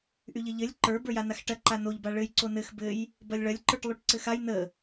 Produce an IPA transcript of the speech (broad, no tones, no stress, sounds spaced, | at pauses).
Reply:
ʔ y ʎ ɘ ʎ ɘ lʲ ǃ ə˞ b ə˞ j a n a x ʈ ɐ ǃ a n o ʎ b a ɭ ɘ j ǀ o n ɘ x b ɘ j | b ɐ lʲ ɭ ɐ lʲ ǃ ə˞ ʈ lˠ y ʈ ǀ ɘ x a j n ə